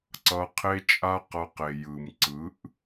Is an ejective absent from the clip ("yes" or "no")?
no